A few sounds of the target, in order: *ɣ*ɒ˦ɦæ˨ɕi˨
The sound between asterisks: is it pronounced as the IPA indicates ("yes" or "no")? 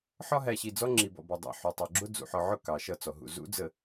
no